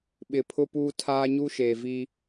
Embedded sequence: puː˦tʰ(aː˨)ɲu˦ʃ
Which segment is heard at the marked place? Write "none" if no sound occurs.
aː˦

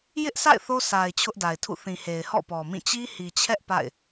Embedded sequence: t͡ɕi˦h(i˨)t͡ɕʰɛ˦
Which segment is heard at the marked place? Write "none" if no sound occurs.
i˨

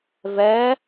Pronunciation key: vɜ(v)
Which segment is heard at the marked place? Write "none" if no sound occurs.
none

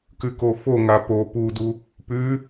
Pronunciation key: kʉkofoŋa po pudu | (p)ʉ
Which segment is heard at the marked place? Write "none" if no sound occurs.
p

